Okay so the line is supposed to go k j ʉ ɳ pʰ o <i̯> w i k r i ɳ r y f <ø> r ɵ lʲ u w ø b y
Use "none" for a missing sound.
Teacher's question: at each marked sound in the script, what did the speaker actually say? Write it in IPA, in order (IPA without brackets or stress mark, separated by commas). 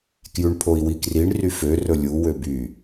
i̯, ø